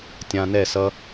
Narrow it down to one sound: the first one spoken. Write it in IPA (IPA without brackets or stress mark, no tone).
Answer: tʲ